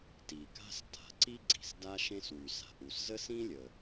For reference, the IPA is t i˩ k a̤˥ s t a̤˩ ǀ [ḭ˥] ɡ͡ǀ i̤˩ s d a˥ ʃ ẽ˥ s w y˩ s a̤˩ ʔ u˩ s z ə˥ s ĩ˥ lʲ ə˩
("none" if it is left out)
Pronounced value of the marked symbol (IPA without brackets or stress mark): i˥